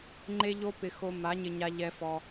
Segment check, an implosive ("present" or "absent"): absent